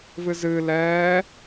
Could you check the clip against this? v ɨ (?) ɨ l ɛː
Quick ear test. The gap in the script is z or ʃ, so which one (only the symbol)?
z